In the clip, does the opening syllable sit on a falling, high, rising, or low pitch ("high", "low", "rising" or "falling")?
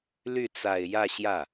falling